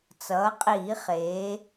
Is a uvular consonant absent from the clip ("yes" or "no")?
no